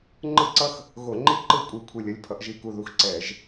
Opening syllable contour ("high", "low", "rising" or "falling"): falling